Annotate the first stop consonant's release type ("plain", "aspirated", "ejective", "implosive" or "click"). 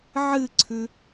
click